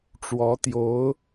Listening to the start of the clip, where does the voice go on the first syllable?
rising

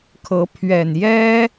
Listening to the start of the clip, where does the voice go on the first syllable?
rising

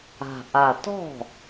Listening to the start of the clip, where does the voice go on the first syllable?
low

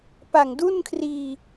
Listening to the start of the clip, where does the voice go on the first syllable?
low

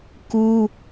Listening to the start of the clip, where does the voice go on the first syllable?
high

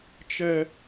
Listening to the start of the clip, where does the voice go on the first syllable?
high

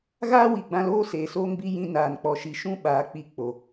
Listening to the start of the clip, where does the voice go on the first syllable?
high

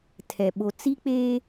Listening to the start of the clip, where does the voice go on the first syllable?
low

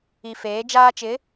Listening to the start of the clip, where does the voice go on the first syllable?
low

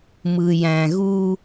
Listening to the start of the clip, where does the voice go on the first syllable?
low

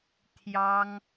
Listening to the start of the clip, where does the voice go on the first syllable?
high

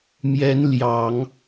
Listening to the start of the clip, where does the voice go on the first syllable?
rising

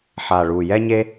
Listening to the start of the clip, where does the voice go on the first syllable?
low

